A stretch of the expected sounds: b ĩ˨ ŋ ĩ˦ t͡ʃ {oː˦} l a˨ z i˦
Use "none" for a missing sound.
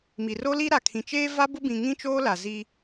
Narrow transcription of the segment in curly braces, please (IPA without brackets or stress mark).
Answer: oː˦